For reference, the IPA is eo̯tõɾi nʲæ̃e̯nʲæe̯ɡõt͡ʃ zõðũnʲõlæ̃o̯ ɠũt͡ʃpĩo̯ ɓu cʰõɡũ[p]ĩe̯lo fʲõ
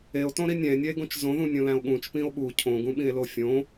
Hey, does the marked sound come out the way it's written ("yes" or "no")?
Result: no